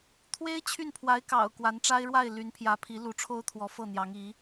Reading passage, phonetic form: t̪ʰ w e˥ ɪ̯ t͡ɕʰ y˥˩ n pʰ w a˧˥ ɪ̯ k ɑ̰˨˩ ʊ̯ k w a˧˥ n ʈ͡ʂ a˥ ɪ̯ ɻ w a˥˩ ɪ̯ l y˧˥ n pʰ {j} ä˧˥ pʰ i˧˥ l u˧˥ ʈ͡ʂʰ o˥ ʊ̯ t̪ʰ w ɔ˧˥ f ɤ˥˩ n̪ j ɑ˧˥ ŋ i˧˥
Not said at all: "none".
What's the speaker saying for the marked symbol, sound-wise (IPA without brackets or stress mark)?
j